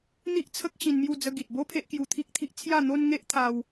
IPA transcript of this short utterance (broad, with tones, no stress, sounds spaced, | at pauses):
n̪ i˦ ʔ t͡sʰ ə˦ k̚ ɕ ĩ˧ n m j u˥˧ d͡z ə˦ ɡ i˨ t̚ b o˦ pʰ e˦ ʔ k j u˧ t̪ʰ i˦ k̚ t̪ʰ i˦ ʔ t͡sʰ j a˥˧ n̪ o˦ n ŋ e˦ ʔ t̪ʰ a˧ w